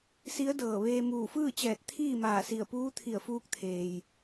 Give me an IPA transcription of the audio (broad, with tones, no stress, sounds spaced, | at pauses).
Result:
s i˧˥ ə̯ d ɤː˧˩ ʋ eː˧ m uː˧˩ f ɯː˥˨ t͡ɕ ɛː˧˩ t̚ t̪ʰ iː˥˨ m aː˧˩ s i˧˩ ə̯ p uː˧˥ t̪ʰ i˧˩ ə̯ f uː˧ k̚ t̪ʰ eː˩ j